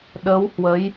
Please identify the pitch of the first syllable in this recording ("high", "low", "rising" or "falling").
rising